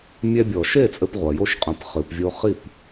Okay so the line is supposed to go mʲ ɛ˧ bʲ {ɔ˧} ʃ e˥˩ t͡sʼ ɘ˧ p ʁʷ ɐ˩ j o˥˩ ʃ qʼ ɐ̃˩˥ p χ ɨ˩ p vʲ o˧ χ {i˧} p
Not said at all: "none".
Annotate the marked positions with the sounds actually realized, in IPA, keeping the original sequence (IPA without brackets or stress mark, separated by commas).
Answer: ɔ˩, i˥˩